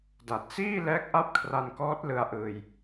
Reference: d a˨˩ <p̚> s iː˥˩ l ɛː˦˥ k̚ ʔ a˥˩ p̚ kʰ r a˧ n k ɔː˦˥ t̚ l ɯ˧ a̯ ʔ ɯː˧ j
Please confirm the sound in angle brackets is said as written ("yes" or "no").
no